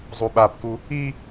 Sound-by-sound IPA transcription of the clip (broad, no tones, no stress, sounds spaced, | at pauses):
zˤ u ɓ a p k u | i